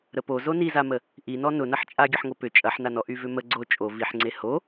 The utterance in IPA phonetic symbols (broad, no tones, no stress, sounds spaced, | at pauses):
ɾ ə p o z o n i z a m ə | ʔ i n ɔ n ʊ n ɐ ħ t͡ʃʼ a ɡʲ ə ħ ŋ o p ʏ t͡ʃʼ ɐ ħ n a n ɔ ʔ y v ʏ m ə ɡ͡ǀ o t͡ʃʼ o v i ħ ŋ͡ǀ e h o